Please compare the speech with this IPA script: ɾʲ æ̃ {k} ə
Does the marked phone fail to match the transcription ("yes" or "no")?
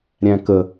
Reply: no